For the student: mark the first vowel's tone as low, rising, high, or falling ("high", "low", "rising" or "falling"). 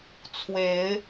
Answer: rising